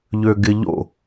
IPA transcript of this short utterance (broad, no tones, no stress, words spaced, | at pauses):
ʎøɡɪʎo̰